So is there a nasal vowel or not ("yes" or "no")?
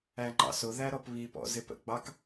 no